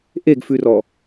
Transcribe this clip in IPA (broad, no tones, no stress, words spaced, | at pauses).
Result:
ʔeɡfʉrɔ